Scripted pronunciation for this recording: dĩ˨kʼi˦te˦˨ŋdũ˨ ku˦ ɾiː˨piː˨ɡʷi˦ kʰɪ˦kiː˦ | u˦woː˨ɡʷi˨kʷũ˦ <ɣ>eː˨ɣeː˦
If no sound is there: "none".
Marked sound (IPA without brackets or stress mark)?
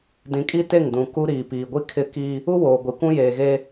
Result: j